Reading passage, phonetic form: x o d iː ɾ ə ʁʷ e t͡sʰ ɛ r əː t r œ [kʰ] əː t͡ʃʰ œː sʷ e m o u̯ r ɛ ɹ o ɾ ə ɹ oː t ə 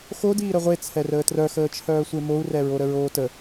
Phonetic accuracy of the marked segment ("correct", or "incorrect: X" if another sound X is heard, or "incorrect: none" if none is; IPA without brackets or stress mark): incorrect: x